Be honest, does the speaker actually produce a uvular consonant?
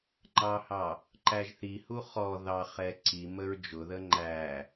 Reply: yes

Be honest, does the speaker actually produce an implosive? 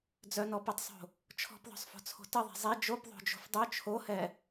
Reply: no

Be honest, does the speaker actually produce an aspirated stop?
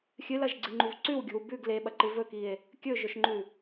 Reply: no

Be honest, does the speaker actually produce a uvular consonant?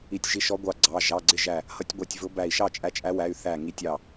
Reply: no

